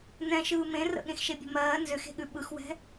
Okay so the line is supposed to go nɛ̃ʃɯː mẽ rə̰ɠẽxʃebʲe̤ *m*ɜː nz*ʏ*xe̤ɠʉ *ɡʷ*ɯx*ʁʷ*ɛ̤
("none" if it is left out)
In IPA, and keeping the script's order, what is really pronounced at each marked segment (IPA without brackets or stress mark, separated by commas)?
m, ʏ, ɓ, w